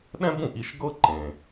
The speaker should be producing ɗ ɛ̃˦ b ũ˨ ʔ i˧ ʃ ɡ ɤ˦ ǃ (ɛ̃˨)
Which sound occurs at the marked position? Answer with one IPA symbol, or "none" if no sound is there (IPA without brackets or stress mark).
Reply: ẽ˨